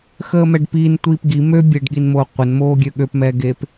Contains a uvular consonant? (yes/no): yes